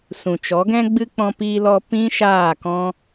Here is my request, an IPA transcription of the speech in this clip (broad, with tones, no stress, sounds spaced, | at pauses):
s ũ˨ t͡ʃ ɔ˨˦ ɡ ɛ̃˦ ɡ͡b ɨ˦ k͡p ɔ̃˦ p iː˦ l ɔ˦ p ĩ˦ ʃ aː˦˨ k ɔ̃˦